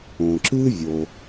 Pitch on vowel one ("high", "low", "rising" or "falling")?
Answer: low